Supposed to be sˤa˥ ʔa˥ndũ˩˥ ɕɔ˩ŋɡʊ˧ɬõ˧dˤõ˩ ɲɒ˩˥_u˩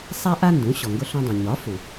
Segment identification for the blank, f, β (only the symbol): f